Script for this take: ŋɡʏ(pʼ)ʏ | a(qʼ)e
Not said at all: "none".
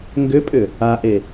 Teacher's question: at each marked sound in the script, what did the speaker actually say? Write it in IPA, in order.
pʼ, ʔ

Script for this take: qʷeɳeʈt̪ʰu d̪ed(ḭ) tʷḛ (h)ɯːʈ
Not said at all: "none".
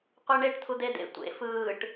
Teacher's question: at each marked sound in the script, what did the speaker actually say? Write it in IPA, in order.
ḛ, f

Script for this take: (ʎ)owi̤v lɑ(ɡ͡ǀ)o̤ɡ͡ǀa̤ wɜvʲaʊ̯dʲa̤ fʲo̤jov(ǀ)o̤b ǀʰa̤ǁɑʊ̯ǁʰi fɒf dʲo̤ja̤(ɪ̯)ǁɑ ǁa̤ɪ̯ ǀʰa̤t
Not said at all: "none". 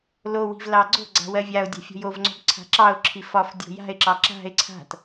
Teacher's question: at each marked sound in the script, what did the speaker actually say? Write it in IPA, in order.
l, ɡ͡ǀ, ŋ͡ǀ, ɪ̯

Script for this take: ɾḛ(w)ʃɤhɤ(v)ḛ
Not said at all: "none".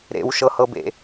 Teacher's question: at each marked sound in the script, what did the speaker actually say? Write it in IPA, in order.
w, b

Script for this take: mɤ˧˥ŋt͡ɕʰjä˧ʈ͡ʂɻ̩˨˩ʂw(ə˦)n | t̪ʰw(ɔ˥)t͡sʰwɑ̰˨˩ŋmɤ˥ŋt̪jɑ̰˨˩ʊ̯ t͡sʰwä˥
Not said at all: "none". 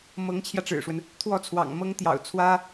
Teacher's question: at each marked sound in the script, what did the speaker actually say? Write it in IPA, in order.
ə˦, ɔ˥˩

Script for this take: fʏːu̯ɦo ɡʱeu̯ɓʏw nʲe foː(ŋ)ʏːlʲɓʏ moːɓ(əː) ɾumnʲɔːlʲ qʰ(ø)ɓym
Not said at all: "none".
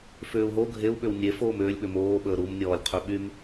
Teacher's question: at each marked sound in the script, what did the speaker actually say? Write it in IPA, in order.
m, əː, ø

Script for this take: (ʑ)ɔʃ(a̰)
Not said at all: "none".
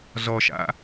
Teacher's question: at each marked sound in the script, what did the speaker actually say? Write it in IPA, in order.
z, a̰

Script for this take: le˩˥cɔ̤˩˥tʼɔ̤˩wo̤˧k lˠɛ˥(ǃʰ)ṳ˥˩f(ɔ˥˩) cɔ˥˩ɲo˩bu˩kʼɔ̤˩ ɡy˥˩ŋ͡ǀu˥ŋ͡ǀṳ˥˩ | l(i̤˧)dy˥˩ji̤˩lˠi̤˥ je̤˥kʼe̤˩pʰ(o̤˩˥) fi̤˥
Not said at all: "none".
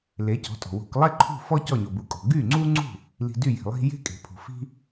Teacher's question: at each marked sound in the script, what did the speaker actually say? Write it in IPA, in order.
ǃʰ, ɔ˥, i̤˧, o̤˩

